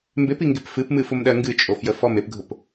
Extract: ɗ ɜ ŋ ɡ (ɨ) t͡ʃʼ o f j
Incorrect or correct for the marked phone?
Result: correct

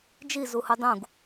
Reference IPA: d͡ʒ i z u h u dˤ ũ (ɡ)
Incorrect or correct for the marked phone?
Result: correct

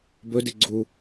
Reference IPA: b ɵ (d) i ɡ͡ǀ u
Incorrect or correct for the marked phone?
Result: correct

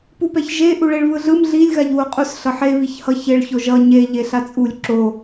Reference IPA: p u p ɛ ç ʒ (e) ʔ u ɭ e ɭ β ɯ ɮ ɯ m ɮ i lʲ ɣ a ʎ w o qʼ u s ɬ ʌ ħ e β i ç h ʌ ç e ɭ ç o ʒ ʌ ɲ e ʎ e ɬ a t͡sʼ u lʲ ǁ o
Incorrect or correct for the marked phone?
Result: correct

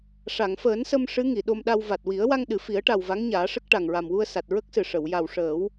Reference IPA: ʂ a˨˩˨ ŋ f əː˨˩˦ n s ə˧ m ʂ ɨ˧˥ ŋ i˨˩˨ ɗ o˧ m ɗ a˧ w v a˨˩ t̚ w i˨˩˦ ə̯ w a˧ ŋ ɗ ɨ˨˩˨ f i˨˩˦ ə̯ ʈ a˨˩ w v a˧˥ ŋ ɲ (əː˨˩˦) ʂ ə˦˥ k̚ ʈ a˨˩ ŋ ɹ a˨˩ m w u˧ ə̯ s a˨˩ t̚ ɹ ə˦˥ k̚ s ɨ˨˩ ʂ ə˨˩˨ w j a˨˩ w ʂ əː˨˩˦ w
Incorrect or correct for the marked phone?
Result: incorrect: aː˨˩˦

